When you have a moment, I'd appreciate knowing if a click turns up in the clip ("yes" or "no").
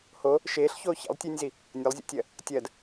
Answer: no